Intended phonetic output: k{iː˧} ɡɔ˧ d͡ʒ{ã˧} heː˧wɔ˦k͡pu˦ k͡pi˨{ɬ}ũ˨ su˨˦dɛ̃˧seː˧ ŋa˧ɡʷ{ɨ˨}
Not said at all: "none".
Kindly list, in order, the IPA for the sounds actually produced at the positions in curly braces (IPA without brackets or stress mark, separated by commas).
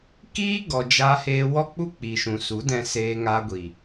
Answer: iː˦, a˧, ʃ, i˨